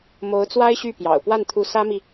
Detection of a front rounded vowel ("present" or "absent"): present